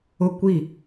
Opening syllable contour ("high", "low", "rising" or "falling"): falling